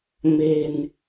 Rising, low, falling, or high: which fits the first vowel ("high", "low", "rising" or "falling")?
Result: low